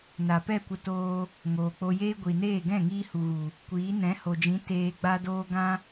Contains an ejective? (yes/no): no